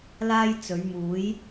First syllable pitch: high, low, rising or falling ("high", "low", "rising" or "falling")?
high